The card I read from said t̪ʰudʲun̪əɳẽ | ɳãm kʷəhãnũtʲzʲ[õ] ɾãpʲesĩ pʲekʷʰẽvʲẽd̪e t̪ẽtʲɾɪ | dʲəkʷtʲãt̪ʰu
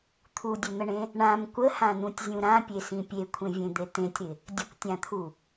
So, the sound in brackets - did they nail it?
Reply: no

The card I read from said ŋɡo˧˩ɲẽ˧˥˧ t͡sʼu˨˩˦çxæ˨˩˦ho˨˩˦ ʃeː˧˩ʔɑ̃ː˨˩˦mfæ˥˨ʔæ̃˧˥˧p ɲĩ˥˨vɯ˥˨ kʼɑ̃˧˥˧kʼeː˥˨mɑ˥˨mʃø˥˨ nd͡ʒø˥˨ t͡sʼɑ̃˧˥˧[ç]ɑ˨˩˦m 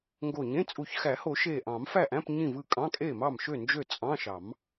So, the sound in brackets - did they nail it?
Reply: no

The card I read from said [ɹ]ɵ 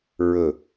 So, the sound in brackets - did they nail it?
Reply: yes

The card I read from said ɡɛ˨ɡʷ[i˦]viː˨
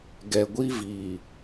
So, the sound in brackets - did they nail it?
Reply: yes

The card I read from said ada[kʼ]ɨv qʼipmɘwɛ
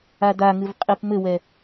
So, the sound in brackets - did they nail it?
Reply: no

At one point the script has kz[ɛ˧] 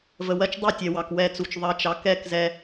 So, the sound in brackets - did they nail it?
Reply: yes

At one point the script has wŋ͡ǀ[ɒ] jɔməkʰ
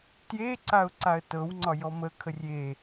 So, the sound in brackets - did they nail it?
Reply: yes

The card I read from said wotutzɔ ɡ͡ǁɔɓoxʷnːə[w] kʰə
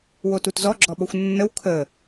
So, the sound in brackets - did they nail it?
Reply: yes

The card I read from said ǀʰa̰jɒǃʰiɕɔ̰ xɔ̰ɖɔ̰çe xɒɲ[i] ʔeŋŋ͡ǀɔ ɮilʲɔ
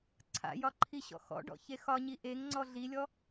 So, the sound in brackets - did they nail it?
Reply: yes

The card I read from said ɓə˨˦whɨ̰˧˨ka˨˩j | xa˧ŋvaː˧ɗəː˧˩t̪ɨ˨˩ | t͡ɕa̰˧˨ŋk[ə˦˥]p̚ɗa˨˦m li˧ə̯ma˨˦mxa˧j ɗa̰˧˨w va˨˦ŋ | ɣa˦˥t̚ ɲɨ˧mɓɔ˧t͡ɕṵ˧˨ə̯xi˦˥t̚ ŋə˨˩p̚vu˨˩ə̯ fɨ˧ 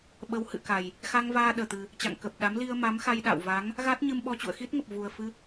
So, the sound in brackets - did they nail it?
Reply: no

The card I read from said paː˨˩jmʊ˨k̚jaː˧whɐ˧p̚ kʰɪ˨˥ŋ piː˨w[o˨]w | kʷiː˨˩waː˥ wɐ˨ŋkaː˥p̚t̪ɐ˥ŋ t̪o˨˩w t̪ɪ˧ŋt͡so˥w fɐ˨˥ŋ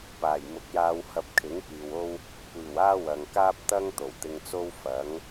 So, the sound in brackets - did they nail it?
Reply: no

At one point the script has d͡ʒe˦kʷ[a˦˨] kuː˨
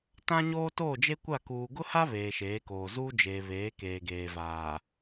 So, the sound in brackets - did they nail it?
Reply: yes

